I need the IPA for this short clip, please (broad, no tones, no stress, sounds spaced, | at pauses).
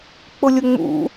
k͡p ʊ lʲ ʊ ŋ͡m ṵ